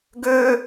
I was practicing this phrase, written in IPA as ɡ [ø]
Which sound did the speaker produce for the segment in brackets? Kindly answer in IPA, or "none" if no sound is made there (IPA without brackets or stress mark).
ø